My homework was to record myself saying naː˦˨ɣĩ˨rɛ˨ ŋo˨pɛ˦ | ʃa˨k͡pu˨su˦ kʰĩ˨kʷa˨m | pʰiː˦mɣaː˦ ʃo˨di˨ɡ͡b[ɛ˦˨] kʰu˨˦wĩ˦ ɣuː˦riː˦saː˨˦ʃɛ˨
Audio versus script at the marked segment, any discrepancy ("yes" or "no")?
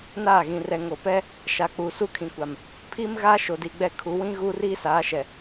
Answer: no